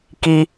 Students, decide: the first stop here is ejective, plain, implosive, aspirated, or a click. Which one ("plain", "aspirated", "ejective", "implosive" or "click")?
plain